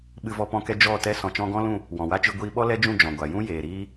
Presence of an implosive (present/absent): present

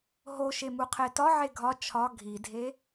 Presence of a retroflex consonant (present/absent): absent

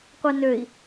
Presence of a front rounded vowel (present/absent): present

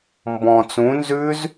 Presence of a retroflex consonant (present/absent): absent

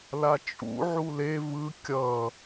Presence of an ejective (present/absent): present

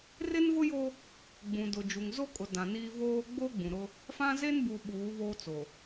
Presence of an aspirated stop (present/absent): absent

